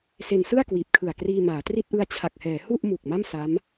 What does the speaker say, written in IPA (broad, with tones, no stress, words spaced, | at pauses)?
se˧nsɯ˥˩a̯kwiː˨˩p̚kʰɯ˨˩a̯ kriː˧ maː˩˦tri˥˩t̚ ʔɯ˧a̯t͡ɕʰa˨˩k̚hɛː˩˦ hu˥˩ʔ mu˨˩k̚ma˥˩m sa˦˥m